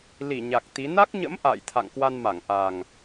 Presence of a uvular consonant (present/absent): absent